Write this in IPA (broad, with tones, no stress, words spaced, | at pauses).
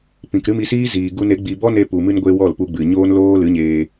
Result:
pĩ˨k ɾɨ˦mi˧siː˦ ziː˨ɡu˧n e˨˦ɡ͡bi˧ bɔ˦ne˧pu˨mɨ˧n ɡʷe˧ wɔ˦˨lpu˧ɡ͡bɨ˨ ɲoː˦nloː˦ lɨ˨˦ɲeː˧